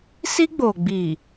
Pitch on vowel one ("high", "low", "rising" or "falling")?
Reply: high